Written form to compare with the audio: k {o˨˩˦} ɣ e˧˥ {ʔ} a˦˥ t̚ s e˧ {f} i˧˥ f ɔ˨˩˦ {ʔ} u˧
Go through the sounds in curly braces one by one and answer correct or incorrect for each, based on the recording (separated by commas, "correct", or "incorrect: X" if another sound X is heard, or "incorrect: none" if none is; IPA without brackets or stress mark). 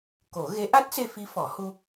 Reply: correct, correct, correct, incorrect: h